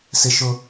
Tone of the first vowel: high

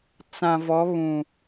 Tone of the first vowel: low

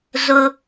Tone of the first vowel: high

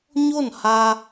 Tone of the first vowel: falling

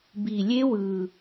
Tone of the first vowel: low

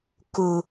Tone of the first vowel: low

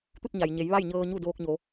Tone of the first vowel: falling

